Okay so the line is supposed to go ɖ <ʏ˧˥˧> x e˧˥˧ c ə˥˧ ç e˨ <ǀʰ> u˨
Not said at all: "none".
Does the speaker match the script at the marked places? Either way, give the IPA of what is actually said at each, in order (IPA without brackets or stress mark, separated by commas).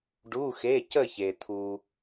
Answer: u˧˥˧, t̪ʰ